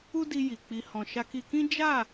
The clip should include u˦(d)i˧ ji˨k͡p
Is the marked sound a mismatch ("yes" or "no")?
no